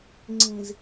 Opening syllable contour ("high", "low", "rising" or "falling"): low